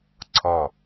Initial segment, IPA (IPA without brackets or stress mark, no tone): ǀʰ